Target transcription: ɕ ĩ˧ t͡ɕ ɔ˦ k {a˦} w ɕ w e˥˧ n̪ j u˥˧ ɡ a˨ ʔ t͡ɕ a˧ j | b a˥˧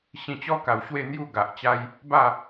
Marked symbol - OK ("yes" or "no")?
no